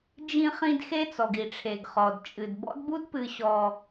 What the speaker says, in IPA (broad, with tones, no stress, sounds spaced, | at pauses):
d͡ʒ ĩ˧ χ ĩ˧ d x e˦ t͡s ɔ˨ ɡ i˨ ʈ͡ʂʰ e˨ ɡ χ ɔ˨ d t͡ʃʼ ɨ˨ d b ɔ̰˦ d b u˦ d p ɨ˧ ɕ ɔ˧